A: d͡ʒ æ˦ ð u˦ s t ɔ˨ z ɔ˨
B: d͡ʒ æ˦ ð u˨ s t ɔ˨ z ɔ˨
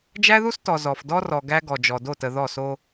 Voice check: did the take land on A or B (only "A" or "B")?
A